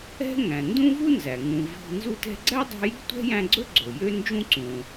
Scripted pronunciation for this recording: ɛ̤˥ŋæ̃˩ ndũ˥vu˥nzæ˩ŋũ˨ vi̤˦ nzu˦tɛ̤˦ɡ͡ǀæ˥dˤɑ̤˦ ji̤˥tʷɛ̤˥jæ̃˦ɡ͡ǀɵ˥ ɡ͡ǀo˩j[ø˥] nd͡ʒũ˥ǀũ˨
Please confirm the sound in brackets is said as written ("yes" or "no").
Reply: no